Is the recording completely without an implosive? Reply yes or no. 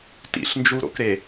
yes